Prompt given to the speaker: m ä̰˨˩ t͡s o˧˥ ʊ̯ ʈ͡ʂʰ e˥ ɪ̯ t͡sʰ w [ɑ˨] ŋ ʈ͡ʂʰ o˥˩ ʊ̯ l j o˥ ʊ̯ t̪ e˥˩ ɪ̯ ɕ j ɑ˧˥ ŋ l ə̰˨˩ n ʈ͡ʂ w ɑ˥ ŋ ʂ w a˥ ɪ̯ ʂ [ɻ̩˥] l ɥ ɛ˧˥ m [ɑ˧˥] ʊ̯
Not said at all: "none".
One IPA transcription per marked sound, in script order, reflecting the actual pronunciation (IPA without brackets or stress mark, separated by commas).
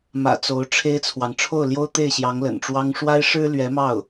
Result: ɑ˨, ɻ̩˥, ɑ˥˩